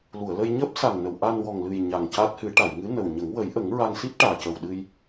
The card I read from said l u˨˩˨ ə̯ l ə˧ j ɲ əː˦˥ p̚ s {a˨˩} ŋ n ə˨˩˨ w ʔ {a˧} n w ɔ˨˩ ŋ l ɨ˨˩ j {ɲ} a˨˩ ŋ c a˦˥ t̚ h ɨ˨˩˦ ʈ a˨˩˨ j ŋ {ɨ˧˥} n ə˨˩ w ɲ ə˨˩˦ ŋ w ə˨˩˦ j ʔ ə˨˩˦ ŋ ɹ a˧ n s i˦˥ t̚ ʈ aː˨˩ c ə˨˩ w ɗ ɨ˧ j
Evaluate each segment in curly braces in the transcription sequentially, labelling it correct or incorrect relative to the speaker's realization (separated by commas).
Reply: correct, correct, correct, correct